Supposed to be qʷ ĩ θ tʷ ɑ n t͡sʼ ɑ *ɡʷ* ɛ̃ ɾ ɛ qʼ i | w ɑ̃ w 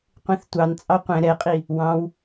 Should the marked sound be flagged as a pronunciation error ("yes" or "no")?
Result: yes